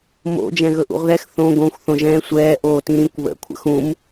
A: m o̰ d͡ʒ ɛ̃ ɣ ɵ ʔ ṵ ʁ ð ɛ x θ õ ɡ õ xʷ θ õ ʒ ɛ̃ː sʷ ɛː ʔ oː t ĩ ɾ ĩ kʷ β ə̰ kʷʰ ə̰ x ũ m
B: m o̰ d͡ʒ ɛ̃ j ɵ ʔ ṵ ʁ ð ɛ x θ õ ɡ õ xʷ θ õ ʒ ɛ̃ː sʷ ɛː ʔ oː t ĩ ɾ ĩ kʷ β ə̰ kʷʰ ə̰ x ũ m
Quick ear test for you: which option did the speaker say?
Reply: A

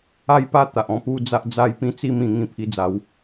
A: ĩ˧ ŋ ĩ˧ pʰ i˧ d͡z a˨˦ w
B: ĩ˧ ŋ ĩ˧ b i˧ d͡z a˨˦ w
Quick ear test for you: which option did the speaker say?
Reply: A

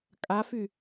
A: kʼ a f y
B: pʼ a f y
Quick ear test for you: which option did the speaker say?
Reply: A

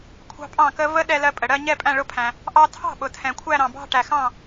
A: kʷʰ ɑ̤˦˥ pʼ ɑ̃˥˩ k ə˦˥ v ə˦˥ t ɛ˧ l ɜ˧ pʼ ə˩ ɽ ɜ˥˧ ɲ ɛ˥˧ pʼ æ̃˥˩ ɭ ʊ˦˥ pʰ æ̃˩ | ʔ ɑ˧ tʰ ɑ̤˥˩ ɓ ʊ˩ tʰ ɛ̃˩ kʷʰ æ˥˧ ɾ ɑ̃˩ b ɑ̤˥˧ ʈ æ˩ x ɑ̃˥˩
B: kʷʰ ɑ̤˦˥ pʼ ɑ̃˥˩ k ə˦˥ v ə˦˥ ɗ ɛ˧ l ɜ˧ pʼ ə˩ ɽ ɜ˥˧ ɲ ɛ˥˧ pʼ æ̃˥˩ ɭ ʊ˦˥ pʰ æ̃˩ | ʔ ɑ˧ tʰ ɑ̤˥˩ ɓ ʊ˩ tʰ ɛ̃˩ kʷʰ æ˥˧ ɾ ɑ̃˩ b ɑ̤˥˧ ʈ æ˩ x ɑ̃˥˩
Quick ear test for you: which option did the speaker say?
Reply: B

